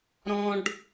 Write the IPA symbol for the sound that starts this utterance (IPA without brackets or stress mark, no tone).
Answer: ɾ